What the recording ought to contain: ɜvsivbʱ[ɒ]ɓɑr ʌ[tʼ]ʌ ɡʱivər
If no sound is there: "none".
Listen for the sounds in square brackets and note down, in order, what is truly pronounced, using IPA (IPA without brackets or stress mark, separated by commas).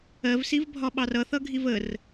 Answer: ɒ, θ